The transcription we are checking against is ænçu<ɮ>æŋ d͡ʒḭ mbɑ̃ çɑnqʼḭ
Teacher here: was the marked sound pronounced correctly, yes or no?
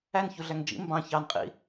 yes